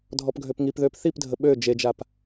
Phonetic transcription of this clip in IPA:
dʱ ɔ p ɡʱ ø p ŋ i p ð ø p θ i p dʱ ə ɓ ø d͡ʒ e d͡ʒ a p

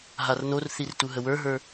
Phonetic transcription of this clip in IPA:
ɦ a r n o r θ i r t u ɦ ə w ə˞ ɦ ə˞

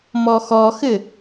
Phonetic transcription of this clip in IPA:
m ɔ x ɔ x ɘ

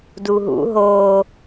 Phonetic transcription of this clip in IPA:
d u ɦ ṵ ɦ oː

